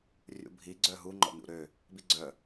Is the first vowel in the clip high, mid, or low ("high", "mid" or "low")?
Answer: high